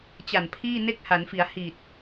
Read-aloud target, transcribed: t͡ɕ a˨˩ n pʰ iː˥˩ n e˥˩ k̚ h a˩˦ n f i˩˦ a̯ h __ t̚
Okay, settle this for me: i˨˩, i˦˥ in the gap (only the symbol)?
i˨˩